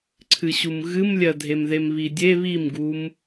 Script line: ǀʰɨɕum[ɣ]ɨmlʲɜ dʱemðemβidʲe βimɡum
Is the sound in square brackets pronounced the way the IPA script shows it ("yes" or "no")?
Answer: yes